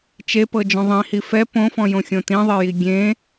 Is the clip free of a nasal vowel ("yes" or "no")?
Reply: no